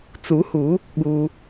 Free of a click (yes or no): yes